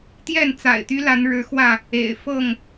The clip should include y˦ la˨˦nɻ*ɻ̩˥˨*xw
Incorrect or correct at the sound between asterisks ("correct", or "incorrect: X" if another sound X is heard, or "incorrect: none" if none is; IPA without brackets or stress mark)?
incorrect: ɻ̩˨˦